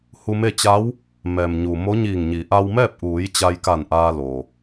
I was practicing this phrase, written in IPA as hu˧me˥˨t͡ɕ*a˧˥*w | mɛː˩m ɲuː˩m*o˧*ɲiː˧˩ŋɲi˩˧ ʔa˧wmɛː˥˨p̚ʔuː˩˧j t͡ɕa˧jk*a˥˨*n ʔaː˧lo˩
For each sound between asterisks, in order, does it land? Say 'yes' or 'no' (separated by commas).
yes, no, no